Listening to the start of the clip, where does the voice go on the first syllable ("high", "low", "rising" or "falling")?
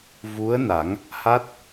rising